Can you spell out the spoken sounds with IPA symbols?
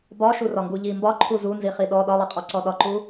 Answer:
b ɒ ʃ u r ɒ ŋ ɡ u ʎ i m b ɒ ǃʰ u z u n z i χ i ɗ ɔ ɗ ɒ lˠ i qʼ ɔ ǀ ɔ ɗ ɒ ǃ u

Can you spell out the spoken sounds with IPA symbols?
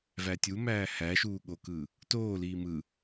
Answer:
v æ tʲ u m æː h æ ʃ uː ɠ o k ɯ | t oː l iː m ɯ

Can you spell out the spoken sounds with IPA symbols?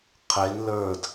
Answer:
qʰ e n l ə˞ d

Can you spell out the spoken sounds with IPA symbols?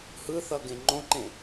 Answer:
h ɯ θ ʌ ɡ ẽ ŋ͡ǃ õ ǃ ẽ

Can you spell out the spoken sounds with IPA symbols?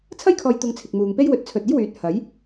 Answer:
t͡sʰ ɐ˥ j kʰ ɔː˨ j t̪ ʊ˨ ŋ t͡sʰ ɪ˨ k̚ m uː˨ ŋ p e˥ j w ɵ˨˥ t̚ t͡sʰ ɵ˨ t̚ e˥ j w yː˨˥ t̚ h ɐ˨˥ j

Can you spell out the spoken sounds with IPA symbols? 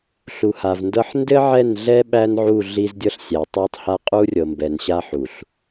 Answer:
ɬ u˨ h a˨ v n d ɤ˦ ħ n d ɘ˦ ʕ ɛ˦˨ n ɮ ɛ˦ ɓ æ˦ n ʕ u˦˨ ɮ i˦ z dʲ ɤ˦ ɬ sʲ æ˨ tˤ æ˦ tˤ h a˦ qʼ u˦ rʲ ɤ˨ m b ɛ˨ n ɕ a˦ ħ u˨ ɬ

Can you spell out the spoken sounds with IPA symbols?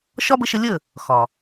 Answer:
ʃ ɒ˦ b ə˧ ʃ ə˧ lʲ ə˦˨ | x ɒ˨

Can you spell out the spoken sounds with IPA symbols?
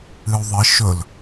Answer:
ɨ u̯ ðˤ ɨ ʃ ɵ l

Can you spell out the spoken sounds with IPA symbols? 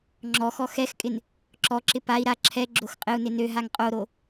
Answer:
ŋ͡ǁ ɔ x ɔ x ɛ x kʼ ɪ n | ǁ ɔ ǁ ɪ p a i̯ ɾ a ǁʰ ɛ ɡ͡ǁ o x qʼ ɪ u̯ n ɪ n ø ɦ a ŋ qʼ o ɾ o

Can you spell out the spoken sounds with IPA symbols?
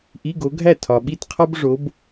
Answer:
ʔ i˧˥˧ ɡ o˨˦ ɡʱ æ˥˩ tʰ ɒ˨ ɓ i˥˩ t qʰ ɒ˥ b ʐ o˨˦ b

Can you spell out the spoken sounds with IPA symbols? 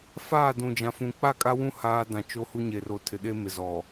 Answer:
f aː˦˨ d ũ˨ d͡ʒ ã˨ f ũ˨ k͡p a˦˨ kʼ a˦ w ũ˦ h aː˦ d ã˨ t͡ʃ o˦ h u˦ ɲ e˨ r o˨ tʰ ɪ˨ ɗ e˦ m ɪ˨ z ɔ˨

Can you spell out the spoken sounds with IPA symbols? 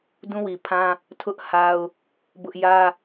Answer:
d ũ˦ w i˨ pʰ ã˦ | tʰ ʊ˦ ʔ h a˦ ʊ̯ | b ʊ˦ ʔ j ä˦

